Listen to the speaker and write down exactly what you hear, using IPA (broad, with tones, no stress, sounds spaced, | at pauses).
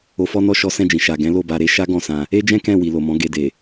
o˨ f ɔ˧ n ɔ˧ ʃ ɔ˦ s ɛ̃˦˨ d͡ʒ ĩ˨ ʃ a˨ ɡ ɛ̃˨˦ l o˦˨ b a˧ ɾ e˧ ʃ a˦ ɡ ɔ̃˦˨ s ã˧ | e˦ d͡ʒ ɛ̃˦ k ɛ̃˦˨ w i˨ l o˨ m ɔ̃˨˦ ɡ e˧ d e˨